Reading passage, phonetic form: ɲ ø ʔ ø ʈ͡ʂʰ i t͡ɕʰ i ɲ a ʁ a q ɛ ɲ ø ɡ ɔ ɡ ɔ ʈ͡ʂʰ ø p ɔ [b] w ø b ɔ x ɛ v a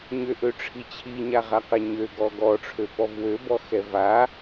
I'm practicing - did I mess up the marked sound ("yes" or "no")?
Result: yes